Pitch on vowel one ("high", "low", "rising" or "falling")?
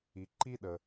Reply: low